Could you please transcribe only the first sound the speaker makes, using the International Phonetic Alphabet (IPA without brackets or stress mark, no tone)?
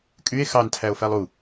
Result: kʼ